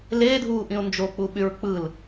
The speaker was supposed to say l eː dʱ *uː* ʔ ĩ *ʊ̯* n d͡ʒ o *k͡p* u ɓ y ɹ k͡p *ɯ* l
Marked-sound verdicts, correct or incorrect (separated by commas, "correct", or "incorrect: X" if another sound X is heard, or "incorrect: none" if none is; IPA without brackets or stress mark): correct, correct, correct, correct